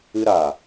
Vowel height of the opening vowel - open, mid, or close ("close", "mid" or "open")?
close